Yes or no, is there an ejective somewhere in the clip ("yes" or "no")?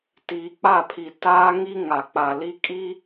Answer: yes